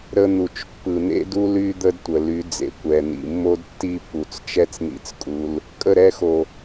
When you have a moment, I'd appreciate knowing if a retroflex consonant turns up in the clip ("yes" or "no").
no